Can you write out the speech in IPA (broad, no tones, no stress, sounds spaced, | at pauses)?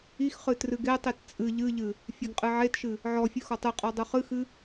i x χ ɨ t r ɨ ɡ e tˤ i t t͡sʼ ɨ ʎ ɨ ʎ ɨ | fʲ e ɡ qʼ ɨ ʕ e t ʃ ɨ | ʕ ɔ fʲ ɨ x ɔ tˤ ɨ qʼ ɔ dˤ ɨ χ ɨ x ɨ